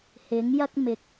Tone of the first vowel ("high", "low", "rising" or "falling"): rising